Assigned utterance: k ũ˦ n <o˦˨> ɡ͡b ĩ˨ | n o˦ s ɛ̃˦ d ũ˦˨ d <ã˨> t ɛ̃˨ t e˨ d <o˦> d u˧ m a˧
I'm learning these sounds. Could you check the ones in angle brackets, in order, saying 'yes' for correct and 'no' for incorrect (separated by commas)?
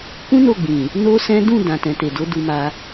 yes, yes, no